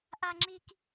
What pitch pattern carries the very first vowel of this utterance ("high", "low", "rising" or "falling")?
high